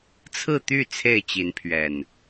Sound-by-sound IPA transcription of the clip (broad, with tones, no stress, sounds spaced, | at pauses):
t͡sʰ ɹ̩˥˨ t̪ y˥˨ t͡sʰ e˥˨ ɪ̯ t͡ɕ i˨˦ n pʰ ɥ ɛ˨˩ n